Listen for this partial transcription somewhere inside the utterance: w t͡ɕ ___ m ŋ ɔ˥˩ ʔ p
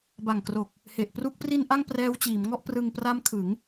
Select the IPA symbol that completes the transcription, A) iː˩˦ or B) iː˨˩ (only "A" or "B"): A